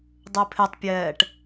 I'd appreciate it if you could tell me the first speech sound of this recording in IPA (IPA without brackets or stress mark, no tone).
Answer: dˤ